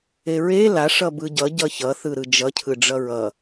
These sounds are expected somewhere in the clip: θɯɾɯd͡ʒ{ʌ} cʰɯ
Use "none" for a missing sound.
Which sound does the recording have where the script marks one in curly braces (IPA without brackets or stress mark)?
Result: ʌ